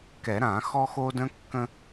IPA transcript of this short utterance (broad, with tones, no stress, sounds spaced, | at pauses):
k ɛ˨˩˦ ɾ ã˨˩˦ x ɔ˦ x o˦ d ə̃˦ kː ə̃˦